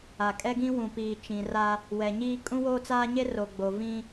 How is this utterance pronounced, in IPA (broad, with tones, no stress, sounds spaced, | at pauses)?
a˨ kʼ ɛ˦ ɡ ĩ˦ w ũ˨ p iː˨ t͡ʃ ĩ˨ r a˦ | w ɛ˨ ɲ iː˦ kʼ ũ˦ w oː˦ t͡s aː˦ ɲ e˦ r o˨ ɡ͡b o˨ v ĩ˦